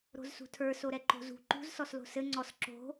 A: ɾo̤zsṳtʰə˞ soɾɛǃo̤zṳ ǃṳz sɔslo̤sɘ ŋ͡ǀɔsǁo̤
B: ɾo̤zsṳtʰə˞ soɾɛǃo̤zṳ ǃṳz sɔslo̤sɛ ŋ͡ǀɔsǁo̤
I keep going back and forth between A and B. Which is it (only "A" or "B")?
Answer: A